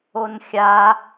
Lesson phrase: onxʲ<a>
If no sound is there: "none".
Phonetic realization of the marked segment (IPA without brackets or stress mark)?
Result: a